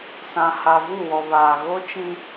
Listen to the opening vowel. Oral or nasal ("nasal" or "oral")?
nasal